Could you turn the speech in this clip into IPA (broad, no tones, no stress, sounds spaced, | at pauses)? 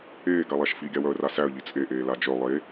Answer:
eː ɡ a lˠ æ ʃ f i ɡʲ a w œ ə̯ r a s æ ə̯ ʎ i t͡sʼ e ʔ eː l a d͡ʒ œ lˠ e